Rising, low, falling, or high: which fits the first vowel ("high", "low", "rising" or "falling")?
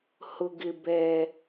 low